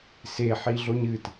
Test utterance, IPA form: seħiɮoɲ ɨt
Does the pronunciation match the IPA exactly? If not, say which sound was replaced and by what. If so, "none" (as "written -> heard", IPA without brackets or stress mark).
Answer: none